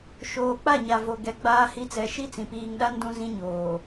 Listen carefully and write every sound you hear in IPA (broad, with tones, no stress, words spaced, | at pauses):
ʃoː˨k͡pa˦˨ɲa˨vo˨ ɡɛ˨ ɡ͡baː˦hi˦t͡sɛ˨˦ ʃi˦t͡sĩ˨piː˨ŋɗa˦n dũ˦zĩ˦ɲoː˨